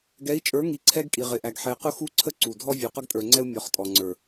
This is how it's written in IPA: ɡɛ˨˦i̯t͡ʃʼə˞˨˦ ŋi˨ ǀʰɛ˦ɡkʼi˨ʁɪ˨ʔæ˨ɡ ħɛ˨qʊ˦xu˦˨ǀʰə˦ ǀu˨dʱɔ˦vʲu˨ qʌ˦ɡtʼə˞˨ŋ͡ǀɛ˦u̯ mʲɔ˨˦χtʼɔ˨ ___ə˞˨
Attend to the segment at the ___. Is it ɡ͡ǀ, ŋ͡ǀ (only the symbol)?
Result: ŋ͡ǀ